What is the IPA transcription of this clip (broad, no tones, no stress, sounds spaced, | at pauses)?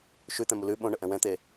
ʃ ʉ t̪ ɛ̃ m u l ʉ ɓ õ ɳ ə ʔ ɛ̃ w ɛ̃ t̪ e